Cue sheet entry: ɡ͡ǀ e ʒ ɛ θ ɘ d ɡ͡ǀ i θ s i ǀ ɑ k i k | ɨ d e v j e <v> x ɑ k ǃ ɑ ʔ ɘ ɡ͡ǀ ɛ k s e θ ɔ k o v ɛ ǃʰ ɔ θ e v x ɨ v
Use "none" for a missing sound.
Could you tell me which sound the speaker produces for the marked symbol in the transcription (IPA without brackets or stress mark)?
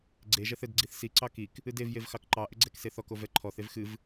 v